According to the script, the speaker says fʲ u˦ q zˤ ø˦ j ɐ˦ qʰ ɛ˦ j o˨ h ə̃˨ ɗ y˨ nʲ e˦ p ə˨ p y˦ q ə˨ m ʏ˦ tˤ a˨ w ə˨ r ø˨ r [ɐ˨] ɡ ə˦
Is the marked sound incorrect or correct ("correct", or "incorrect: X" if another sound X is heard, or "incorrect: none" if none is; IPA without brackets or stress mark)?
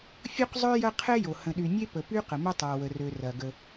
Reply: correct